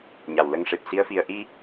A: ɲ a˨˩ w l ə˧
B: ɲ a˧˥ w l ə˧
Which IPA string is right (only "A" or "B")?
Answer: A